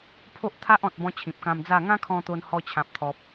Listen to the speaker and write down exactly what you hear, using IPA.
pʰo˦ʔt̪ʰa˦ʔɔ̃˨t̚bɔ̃˧ t͡ɕʰĩ˨p̚kã˧md͡za˥˧ ŋã˦ kʰɔ̃˧t̪o˧n hɔ˧ t͡ɕʰã˨p̚t̪ʰɔ˨p̚

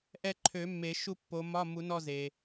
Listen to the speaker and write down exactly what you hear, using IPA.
ʔɛ˦˨ǃʰø˨˩˦mːe˨˩˦ ʃu˦˨ pːo˨˦mɒ˧˥˧ mu˨˩˦nɔ˦˨ze˩

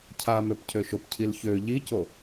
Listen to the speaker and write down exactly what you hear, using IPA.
cʰa møpcʰøʃopcʰil çø ʎico

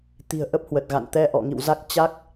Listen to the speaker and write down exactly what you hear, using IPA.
t̪i̤˨˩ə̯ʔə˦˥p̚ hwə˨˩t̚ɣa̰˧˨n t̪ɛ˧ʔɔ̰˧˨ŋḭ˧˨wza˦˥k̚ t͡ɕa˦˥k̚

